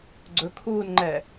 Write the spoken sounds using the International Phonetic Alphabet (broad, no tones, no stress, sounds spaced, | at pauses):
ɡ͡ǀ ɵ kʰ uː n ŋ͡ǃ ɛ